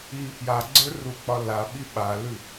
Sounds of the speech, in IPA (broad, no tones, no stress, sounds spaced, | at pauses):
i p j a ɡ͡ǀ ə˞ r u k͡p ɒ l a ɓ i ɓ a l ʉ